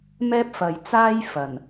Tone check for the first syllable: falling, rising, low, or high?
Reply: high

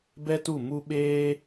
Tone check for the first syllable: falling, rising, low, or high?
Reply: high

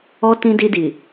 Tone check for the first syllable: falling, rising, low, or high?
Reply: high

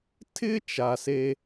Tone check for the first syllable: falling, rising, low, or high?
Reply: high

